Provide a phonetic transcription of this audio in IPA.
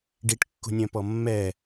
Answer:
ɖ i ʈ kː ṳ nʲ œ̃ p ɔ mː ɛ

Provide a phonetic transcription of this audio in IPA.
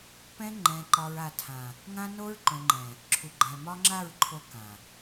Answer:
p ɛ̃˦ ŋ͡ǃ ɛ̃˨ ǃ ɒ˨ ɹ a˨ tʰ ã˨ | ŋ ã˦ n o˦ ɹ ǃ õ˨ ŋ͡ǃ ɛ̃˨ | ǁʰ u˨ ɡ͡ǃ ɛ̃˨ m ɒ˦ ŋ͡ǁ a˦˨ ɹ ǃʰ o˦ k ã˨

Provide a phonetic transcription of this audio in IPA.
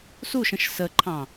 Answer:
s u ʃ ə̃ ʃ s ə ǃʰ ɑ̃

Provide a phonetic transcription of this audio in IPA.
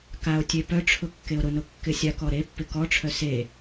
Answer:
k a o̯ tʲ e p œ ʈ͡ʂʰ ʊ kː e o̯ ɾ ʊ n ʊ kː ɪ sʲ a k ɔ ɾ e pː ɪ k ɔ ʈ͡ʂʰ œ s e

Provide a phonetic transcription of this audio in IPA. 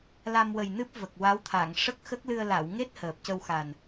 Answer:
l a˧ m w ə˨˩ j n ɨ˦˥ p̚ v ə˨˩ k̚ w a˧˥ w t̪ʰ a˨˩˨ ŋ ʂ ə˦˥ k̚ x ə˦˥ k̚ l ɨ˧ ə̯ l a˨˩˨ w ŋ e˦˥ t̚ h əː˨˩ p̚ c ə˧ w x a˨˩ n

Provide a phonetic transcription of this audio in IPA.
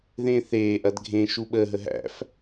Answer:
ð ẽː θ eː ʔ ɐ d ɡʱ ẽ ʃ u ɓ əː ɦ ə ɦ æ̰ f

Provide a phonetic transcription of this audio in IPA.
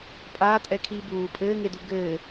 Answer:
pʼ aː tʼ ɛ kʰ iː b uː pʼ ɘː ŋ e d u ɡ ɘː

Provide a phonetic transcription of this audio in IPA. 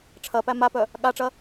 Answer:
ʈ͡ʂʰ ɐ p æ m a p œ | ɠ a ʈ͡ʂ ɐ

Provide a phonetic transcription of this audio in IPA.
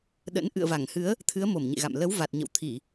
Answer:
ɗ ə̰˧˥ n ʔ ɨ̰˧˨ ə̯ v a˧˩ ŋ h ɨ˨˦ ə̯ | t̪ʰ ɨ˨˦ ə̯ m o˧˩ m ɲ ḛ˧˨ ɣ a̰˧˨ m l ə˨˦ w v a˨˩ t̚ ɲ ə̰˧˨ w t̪ʰ i˧˩˨

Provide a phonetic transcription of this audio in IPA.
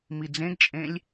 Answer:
m i d͡z ẽ ɡ t͡ʃʼ ẽ lʲ

